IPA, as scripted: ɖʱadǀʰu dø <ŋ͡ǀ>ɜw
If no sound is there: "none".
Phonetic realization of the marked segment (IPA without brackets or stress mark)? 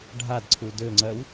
ŋ͡ǀ